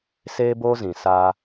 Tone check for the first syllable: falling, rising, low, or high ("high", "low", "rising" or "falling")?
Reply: high